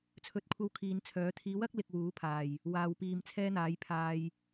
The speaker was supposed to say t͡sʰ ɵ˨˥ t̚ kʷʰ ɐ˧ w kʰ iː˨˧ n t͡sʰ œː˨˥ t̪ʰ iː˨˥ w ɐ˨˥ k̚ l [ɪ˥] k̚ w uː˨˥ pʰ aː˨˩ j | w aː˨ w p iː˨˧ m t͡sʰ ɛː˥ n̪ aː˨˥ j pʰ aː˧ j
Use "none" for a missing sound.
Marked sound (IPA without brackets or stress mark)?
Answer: ɪ˧